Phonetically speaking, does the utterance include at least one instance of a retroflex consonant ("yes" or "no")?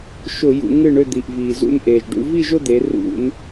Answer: yes